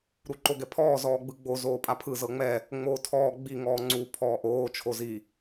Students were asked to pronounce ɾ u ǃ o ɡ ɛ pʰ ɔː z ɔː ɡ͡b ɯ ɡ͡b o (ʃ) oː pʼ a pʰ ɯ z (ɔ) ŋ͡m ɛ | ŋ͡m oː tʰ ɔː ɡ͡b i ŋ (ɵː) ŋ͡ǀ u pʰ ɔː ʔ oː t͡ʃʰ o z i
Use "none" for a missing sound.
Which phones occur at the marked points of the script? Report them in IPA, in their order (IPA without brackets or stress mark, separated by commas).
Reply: z, ɤ, ɔː